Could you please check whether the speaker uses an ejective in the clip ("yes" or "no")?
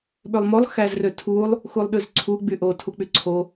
no